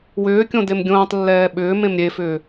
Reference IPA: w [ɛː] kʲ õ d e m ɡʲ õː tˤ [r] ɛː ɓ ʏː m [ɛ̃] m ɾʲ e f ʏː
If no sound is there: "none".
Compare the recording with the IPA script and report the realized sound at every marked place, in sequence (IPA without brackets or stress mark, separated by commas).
ʏː, lː, ẽ